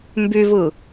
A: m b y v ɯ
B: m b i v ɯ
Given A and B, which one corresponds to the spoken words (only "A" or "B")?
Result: A